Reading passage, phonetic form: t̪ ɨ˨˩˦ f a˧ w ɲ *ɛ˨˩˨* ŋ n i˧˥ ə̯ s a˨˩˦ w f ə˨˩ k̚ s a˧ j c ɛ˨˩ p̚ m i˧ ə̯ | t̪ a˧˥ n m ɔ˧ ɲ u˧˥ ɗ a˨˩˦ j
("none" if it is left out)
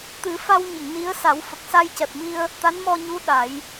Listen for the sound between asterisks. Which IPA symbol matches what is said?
ə˨˩˨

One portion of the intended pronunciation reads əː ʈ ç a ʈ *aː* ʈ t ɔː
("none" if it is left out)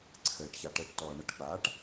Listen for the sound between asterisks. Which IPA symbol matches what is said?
əː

